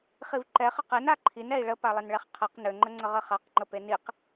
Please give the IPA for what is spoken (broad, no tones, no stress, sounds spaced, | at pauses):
χ i v ǃ ɛ χ ə q ɛ n a ǃʰ i n ɛ i̯ ɭ ə p a lˠ ə n ɭ ɛ χ qʰ ɛ q n ø ŋ͡ǃ ə ŋ͡ǀ ə ʁ ə χ a q ŋ͡ǃ ə p e n i q